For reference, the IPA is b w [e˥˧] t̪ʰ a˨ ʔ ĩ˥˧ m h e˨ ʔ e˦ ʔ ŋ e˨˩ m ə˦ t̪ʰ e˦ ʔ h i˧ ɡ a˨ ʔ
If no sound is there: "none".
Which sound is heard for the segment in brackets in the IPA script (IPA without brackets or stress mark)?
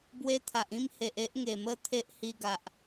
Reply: e˧